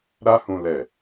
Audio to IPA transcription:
ɾa˧hũ˨ lɛ˨

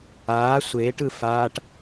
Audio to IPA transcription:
aː sʷeːʈɯ faːʈ

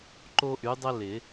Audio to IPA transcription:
ǃo˦ʔy˨˦dˤə˦ lɪ˨˩˦

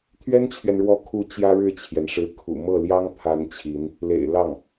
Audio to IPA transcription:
t̪ʰɥɛ˥nt͡ɕʰɥɛ˨nɻwɔ˧˥ kʰu˧˥ t͡ɕjä˥ɻɻ̩˥˩t͡ɕʰjɛ˩nʂɻ̩˧˥ kʰṵ˨˩ mɤ˥˩ljɑ˥ŋ pʰa˧˥n t͡ɕʰi˧˥n | lḛ˨˩ɪ̯lɑ˥˩ŋ

